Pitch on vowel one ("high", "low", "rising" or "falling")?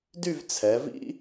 falling